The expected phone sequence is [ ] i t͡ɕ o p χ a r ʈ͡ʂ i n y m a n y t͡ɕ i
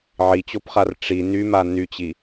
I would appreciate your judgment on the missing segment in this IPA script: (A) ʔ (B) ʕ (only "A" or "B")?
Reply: B